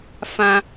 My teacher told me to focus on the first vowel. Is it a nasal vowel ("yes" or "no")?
yes